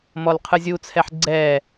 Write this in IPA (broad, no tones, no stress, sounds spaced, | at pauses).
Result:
m ɔ l qʰ ɯ zʲ u t͡sʰ ɛ ħ ɡ͡ǀ ɛ